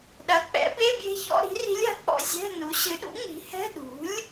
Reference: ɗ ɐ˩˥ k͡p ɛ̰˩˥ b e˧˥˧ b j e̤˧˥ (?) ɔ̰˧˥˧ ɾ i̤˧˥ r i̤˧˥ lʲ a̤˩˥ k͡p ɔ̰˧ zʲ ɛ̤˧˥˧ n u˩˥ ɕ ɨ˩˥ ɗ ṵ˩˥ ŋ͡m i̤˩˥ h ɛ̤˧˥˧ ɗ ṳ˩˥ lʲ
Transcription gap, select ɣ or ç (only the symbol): ç